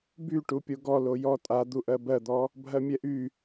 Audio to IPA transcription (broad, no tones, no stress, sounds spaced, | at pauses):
b y ʈ u pʲ o ɡ ɔ l o j ɔ tʼ a d̪ u ʔ ɜ b ɜ d̪ ɔ | bʱ ɜ mʲ ɛ ʔ y